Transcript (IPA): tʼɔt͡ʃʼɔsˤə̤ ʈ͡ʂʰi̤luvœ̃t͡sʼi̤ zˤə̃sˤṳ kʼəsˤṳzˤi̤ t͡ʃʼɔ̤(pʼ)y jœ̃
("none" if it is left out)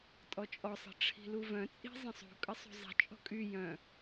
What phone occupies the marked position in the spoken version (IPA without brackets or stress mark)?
kʼ